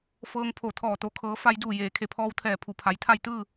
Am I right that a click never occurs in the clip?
yes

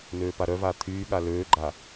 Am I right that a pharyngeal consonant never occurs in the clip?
yes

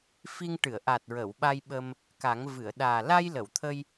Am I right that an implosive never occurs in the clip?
no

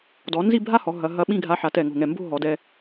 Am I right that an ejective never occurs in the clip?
yes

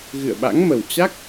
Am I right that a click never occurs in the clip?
yes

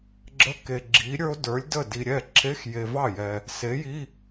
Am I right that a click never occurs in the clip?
no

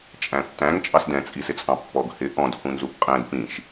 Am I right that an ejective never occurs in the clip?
no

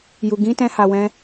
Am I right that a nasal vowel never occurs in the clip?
no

